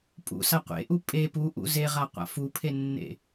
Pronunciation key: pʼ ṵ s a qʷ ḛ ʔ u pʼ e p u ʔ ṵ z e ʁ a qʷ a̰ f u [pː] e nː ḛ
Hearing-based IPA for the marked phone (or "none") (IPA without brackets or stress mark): pʰ